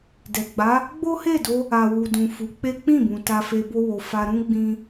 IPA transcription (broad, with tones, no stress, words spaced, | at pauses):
dɛ˨ɡ͡ba˨˦ | ɡ͡bo˦he˦˨do˧ | a˨wu˨dũ˨ fu˨˦k͡pe˦ k͡pĩ˦˨bũ˨ ta˧fe˧ bo˦wo˧ fa˧ɾũ˦ ɡ͡bĩ˦